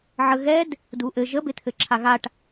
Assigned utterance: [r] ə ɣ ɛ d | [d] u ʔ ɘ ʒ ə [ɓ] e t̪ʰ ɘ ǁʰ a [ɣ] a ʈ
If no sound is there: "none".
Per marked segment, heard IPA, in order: ʕ, d, b, ɣ

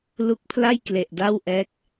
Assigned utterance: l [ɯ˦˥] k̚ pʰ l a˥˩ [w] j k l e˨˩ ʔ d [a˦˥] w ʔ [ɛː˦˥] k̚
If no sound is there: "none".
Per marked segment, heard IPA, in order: u˦˥, none, a˥˩, ɛː˦˥

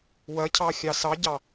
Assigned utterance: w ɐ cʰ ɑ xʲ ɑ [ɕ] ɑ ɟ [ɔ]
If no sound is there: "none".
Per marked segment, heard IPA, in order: s, ɑ

